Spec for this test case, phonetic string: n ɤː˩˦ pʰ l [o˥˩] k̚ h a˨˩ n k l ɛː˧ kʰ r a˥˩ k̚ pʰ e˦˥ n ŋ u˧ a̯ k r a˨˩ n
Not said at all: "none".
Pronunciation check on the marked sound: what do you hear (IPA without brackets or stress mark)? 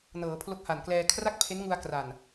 o˦˥